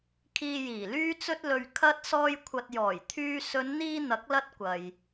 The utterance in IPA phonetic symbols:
kʰ iː˧ j iː˨˩ l yː˧ t͡s ɵ˧ t̚ l ɵ˨ ɥ kʰ ɐ˥ t̚ s ɔː˧ j kʷʰ ɐ˨ t̚ j ɔː˨˩ j t̪ʰ yː˧ s ɵ˨˧ n n̪ iː˧ n̪ ɐ˨˥ k̚ l ɐ˥ t̚ kʷ ɐ˨ j

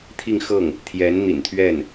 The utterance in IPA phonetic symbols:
t̪ʰ i˥˧ ŋ x ɤ˥˩ ŋ | t̪ʰ j ɛ˧˥ n n̪ ḭ˨˩ n t̪ʰ ɥ ɛ˥˩ n

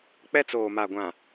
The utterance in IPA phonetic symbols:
k͡p ɛ˦ t͡s oː˨ m a˨ ɡʷ ã˨

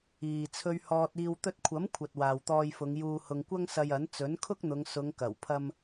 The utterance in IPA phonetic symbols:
iː˨ t͡sʰ ɵ˧ ɥ h ɔː˧ t̚ iː˧ w t̪ ɵ˧ t̚ kʷʰ ɐ˨˥ m kʷʰ ɐ˨ t̚ w aː˨ w t̪ ɔː˧ j f ʊ˨˧ ŋ j uː˧ h ʊ˧ ŋ kʷ ɐ˥ ŋ s ɐ˧ j ɐ˨˥ n t͡s ɵ˨˥ n kʰ ʊ˥ k̚ n̪ ʊ˨˧ ŋ s ʊ˨˧ ŋ k ɐ˨˩ w pʰ ɐ˧ m

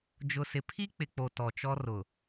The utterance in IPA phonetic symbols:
d͡ʒ ʊ˨ s ɪ˨ pʰ i˦ k͡p ɪ˨ k͡p o˨ t ɔ˨ t͡ʃ ɔ˦ r ʊ˨

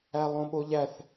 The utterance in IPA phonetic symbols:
æ lˠ õ ɓ o ʎ æ θ

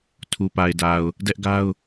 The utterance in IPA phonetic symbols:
tʰ u˨ p a˨ ɪ̯ d a˨ ʊ̯ | d ɛ˦ ʔ ɡ a˦ ʊ̯

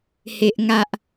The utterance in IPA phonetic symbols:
h e˨ ʔ ŋ a˨ ʔ

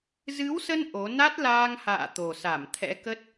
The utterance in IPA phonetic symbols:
z ɨ˨˦ w s ə˧ n ʔ o˨˦ n a˦˥ t̚ l aː˧ ŋ h a̰ː˧˨ t̪ o˨˩ s a˧˩ m t̪ʰ ɛ̰˧˥ k ə˦˥ t̚

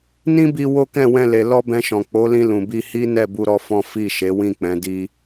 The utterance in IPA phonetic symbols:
n ĩ˦ b i˧ w o˦ k ɛ̃˦˨ w ɛ̃˧ l e˨ l ɔ˧ b ɛ̃˧ ʃ ɔ̃˨ k͡p o˨˦ l ĩ˧ l ũ˨ b i˧ h i˦ n ɛ˦˨ b u˧ ɾ ɔ˦ f ɔ̃˦ f i˦˨ ʃ e˨˦ w ĩ˦˨ k͡p ɛ̃˨˦ d i˦

